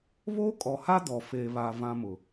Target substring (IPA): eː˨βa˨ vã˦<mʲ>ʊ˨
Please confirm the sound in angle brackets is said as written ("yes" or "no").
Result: no